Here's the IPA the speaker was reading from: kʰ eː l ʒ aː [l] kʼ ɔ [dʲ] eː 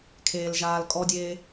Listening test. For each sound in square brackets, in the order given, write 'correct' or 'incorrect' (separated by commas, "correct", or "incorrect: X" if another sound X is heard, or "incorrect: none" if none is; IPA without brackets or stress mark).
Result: correct, correct